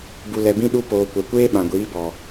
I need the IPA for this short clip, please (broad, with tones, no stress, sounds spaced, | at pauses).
b u˨ l ɛ˨ b ĩ˧ ɗ u˧ p oː˨ kʷ ɛ˨ kʷ eː˦ ɓ ã˨ ɡʷ iː˨˦ b ɔ˨